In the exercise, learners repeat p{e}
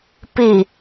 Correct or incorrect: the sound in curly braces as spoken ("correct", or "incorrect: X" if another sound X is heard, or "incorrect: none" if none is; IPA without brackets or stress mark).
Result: incorrect: i